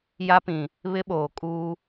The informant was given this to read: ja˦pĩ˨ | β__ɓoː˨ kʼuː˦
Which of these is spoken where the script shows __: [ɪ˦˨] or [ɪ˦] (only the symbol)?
ɪ˦